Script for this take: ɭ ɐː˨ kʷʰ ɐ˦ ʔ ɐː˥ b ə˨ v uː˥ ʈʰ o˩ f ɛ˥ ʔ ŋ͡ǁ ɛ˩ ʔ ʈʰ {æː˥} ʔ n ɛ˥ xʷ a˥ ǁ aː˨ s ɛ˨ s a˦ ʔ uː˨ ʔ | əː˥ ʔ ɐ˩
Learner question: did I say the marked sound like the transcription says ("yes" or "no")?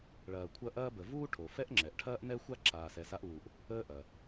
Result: no